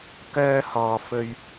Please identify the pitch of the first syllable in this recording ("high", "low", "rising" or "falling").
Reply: high